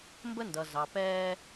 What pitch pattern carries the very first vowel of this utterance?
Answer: high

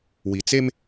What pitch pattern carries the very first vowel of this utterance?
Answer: low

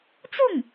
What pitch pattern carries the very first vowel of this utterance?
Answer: falling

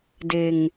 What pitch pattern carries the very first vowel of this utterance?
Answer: low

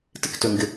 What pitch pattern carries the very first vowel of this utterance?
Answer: falling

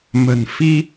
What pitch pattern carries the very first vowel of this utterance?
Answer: low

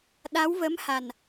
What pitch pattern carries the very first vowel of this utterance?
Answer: rising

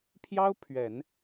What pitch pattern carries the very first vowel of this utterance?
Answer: high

